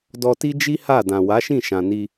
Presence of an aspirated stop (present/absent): absent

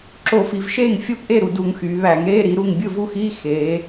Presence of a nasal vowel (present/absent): absent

